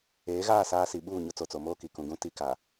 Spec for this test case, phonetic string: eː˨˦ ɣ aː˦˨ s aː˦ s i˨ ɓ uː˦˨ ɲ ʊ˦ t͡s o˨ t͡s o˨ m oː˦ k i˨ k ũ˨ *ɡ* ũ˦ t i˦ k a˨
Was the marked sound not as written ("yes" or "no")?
no